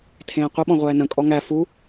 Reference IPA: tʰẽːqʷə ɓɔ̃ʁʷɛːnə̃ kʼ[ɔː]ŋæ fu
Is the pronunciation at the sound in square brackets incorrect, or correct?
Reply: incorrect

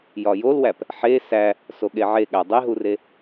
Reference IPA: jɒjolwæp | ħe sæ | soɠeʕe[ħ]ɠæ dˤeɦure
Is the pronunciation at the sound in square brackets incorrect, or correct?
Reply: incorrect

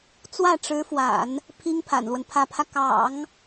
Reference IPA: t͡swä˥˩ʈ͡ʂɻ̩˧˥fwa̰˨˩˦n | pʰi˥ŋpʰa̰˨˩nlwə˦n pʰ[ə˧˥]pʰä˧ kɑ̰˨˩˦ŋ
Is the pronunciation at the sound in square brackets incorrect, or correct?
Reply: incorrect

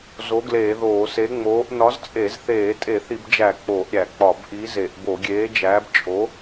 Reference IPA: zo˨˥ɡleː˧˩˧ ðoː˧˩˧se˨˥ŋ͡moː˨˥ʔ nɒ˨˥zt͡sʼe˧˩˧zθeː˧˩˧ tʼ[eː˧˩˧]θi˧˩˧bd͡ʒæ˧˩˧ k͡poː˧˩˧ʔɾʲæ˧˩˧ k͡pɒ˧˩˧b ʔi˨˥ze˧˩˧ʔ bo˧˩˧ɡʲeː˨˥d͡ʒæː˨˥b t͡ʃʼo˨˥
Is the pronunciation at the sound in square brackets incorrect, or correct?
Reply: incorrect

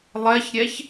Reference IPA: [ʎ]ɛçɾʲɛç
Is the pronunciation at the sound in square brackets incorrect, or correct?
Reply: incorrect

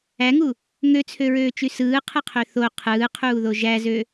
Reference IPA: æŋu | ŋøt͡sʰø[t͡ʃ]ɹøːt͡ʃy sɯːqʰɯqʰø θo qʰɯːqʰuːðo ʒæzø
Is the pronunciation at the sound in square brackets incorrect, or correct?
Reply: incorrect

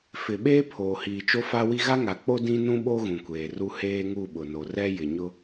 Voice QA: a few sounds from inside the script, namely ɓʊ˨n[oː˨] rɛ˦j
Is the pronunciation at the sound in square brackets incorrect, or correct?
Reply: incorrect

